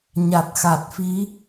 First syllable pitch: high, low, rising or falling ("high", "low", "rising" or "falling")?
low